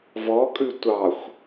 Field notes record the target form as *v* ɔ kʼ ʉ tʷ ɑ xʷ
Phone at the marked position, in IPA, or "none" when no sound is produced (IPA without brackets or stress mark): v